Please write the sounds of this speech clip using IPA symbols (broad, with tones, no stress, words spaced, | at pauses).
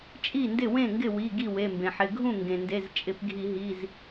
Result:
t͡ʃʼi˥˩ndɪ˥˩wẽ˥˩ŋɡɪ˥˩ wi˩˧˩ ɡi˥˩we˩˧˩mbẽ˩ħɪ˩˧˩ ɡʱũ˥˩ŋɡẽ˩nde˩˧˩z t͡ʃʼɪ˧˩˧pɡʱi˧˩˧ɦi˩˧˩z